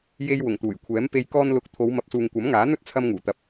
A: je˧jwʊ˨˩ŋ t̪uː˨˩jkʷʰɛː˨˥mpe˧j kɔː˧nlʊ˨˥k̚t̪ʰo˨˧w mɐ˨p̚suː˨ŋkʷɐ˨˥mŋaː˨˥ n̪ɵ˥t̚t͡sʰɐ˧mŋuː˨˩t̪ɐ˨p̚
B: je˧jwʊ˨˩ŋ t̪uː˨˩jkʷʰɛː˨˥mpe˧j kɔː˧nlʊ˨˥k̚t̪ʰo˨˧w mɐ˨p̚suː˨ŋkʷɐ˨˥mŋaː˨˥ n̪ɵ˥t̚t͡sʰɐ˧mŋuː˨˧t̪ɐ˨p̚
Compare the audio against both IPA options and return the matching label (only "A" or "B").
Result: A